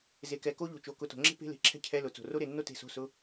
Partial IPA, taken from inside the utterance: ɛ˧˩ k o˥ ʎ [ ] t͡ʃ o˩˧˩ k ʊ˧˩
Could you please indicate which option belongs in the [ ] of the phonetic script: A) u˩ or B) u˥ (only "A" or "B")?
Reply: A